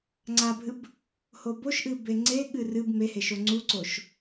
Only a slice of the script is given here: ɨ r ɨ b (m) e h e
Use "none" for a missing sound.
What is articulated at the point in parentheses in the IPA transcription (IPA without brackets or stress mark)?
m